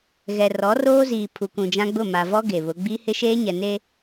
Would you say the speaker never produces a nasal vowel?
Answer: no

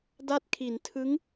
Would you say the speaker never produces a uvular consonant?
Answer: yes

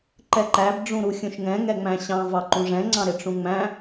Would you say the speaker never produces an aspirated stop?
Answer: yes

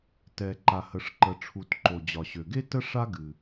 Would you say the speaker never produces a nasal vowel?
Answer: yes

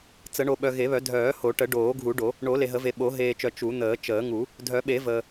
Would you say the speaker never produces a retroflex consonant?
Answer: no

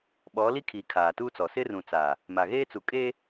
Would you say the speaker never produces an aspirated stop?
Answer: no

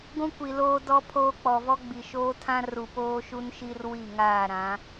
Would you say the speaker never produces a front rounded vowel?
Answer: yes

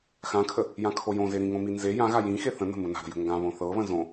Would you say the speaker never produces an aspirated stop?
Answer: no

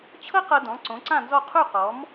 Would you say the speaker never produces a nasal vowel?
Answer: no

